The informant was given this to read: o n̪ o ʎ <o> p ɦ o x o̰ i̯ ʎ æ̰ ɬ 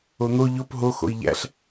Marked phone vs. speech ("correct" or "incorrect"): correct